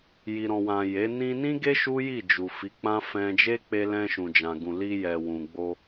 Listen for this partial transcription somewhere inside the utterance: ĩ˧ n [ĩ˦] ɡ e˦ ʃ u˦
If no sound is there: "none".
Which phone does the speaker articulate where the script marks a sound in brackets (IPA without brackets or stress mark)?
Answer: ĩ˦